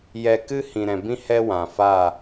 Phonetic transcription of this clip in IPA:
jɛ˧kɨ˦ hĩ˨ɾɛ̃˨bĩ˦ hɛ˦wã˨fa˦˨

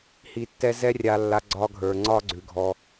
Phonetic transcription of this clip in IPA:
hi˨tːɛ˧ zɛ˦rʲa˧lːa˧ ɡ͡ǀɒ˦ɡʱə˞˧ŋ͡ǀɒ˦ ɡ͡ǀʉ˨ɡʱɔ˧

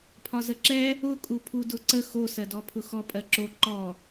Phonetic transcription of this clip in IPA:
pʰɒzəǁɛ | ʊ kʼupʰudʊǀə xo sɜdɔpʰʊxɔ pʼɜǁo ǃɔ

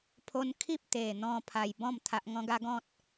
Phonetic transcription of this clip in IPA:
pʰo˧nkʰi˦p̚ t̪e˨˩n̪ɔ̃˧ pʰa˨˩jbɔ̃˥˧m t̪ʰa˦ʔ ŋɔ̃˦ɡa˦ ɡɔ̃˦t̚

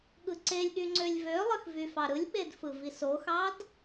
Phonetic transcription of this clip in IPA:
ɠɯǀelʲɠy ŋ͡ǀølʲvølˠɯx vyfɑɾɯlʲɓed fɯvisoxɑd

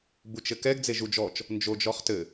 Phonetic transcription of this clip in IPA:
but͡ʃɘkɛɡ d͡zeʒud͡ʒɔt͡ʃ | nd͡ʒod͡ʒɔχtɘ

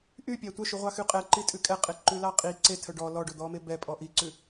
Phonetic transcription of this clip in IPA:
ʔypʲæ tʷœʃʉʁʷɑxy qʼɛǃitʼʉ kʼɛqʼeǃʉlɑ qʼi ǀetʰœ ɖɔ lɔɖɵd̪ɔme bɛpʼɔ ʔiǀʉ

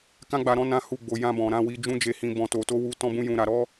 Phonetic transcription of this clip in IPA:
kã˦ɡ͡ba˧ ɾɔ̃˦nã˦hu˦˨ɡ͡bo˧ jã˧bɔ̃˨ ɾã˧wi˧d͡ʒũ˦ d͡ʒe˧hĩ˧bɔ̃˧ to˧to˦wu˦ tɔ̃˦bũ˦jũ˧ɾa˧ ɾɔ˦

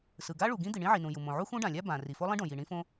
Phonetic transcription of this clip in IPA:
sɯ˩ɡa˥ ɭu˩ɡĩ˥ d̪i˩ɳĩ˥ʕi˩nũ˩ ju˩mõ˩ ʕu˥xũ˥ɖã˩lʲa˥ bã˩ ri˩fo˥lˠĩ˥ɖõ˩ ji˩ɳĩ˥fõ˥

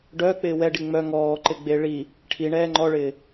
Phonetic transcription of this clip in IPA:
ɖœːk͡pɪː wɛɖi ŋ͡mœ ŋɔː ǃɪɡ͡beɭi | ʈʰiɳɛː ŋ͡ǃɔɭɪː

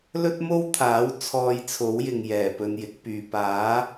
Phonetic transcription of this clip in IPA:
lɵ˥t̚mo˥wt̪ʰaː˨˥w t͡sʰɔː˧jt͡sʰo˨˥wjɪ˨ŋ jɛː˨˩pɵ˧njɪ˨˥k̚pyː˨ paː˨˥

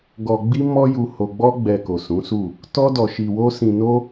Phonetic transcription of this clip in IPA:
ɡɔ˧ɡ͡bi˦mɔ˦ ju˧ ho˧ɡ͡bɔ˦ɡ͡bɛ˧ ko˨sũ˨˦su˦˨ | tɔ˦dɔ˧ʃi˧wo˦ sĩ˧no˦

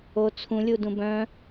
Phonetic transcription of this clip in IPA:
o t͡sʰũlʲudũ bœ̃

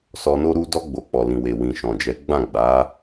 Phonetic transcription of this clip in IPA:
sɔ˧no˦ɾu˦ dɔ˧ɡ͡bo˨k͡pɔ˨lĩ˨ we˨wĩ˨ʃɔ̃˨d͡ʒɛ˨˦ ɡ͡bã˦˨ɡ͡ba˨˦

